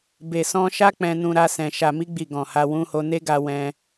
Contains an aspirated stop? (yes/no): no